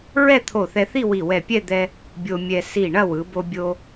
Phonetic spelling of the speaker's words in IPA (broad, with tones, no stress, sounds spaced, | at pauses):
ɹ ɛ˥˧ t̪ʰ o˧˩ θ ɛ˧ θ i˥˧ w i˧˩ w ɛ˧˩ pʲ ɛ˥˧ d̪ ɛ˧ | bʲ o˧ mʲ ɛ˧ s i˧˩ ɳ ɐ˥˧ w ɯ˩˧ b o˧ bʲ o˧